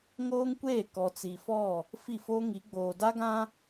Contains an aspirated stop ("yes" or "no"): no